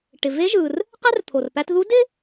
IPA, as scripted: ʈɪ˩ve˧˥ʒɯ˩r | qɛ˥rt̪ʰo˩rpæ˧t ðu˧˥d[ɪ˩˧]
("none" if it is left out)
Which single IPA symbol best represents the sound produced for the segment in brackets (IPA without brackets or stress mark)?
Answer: ɪ˥